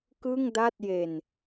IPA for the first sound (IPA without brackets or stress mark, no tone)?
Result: k